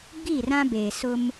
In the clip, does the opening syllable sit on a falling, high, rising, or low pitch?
falling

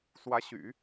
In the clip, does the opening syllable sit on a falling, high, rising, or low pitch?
rising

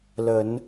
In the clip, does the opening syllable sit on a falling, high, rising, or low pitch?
low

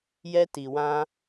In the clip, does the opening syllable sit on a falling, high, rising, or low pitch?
high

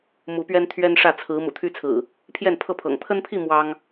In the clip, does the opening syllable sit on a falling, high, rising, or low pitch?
rising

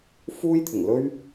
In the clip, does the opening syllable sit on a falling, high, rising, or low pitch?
high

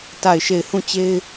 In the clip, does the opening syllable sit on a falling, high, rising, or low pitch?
falling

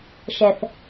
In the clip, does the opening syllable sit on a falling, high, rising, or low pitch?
low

